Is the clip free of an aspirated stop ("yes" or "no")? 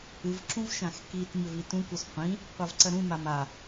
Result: yes